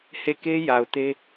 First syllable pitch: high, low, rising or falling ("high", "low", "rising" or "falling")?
falling